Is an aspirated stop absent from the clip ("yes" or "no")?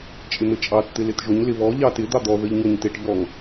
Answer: yes